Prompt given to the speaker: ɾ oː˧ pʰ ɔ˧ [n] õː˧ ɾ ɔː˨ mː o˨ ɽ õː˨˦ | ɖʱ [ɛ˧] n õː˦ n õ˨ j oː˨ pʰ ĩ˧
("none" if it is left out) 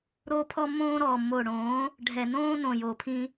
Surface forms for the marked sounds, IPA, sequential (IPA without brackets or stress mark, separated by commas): mː, ɛ˨